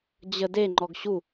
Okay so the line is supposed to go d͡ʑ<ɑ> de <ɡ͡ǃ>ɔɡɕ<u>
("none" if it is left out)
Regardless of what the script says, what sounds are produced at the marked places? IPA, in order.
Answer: ə, ŋ͡ǃ, u

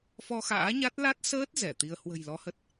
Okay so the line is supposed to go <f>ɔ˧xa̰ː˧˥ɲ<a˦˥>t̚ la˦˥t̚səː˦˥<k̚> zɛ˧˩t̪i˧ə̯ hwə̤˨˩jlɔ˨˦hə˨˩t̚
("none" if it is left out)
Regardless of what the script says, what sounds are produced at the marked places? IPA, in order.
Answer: f, a˦˥, t̚

